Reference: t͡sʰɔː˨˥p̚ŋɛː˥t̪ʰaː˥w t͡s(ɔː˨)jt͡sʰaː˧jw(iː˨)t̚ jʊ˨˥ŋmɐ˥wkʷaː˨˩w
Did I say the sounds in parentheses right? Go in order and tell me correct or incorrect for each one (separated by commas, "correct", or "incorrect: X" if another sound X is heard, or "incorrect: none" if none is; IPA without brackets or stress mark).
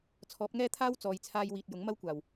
correct, correct